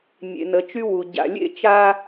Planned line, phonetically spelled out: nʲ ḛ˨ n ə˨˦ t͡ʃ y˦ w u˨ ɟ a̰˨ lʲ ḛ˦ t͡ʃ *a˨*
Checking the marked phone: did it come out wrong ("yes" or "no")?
yes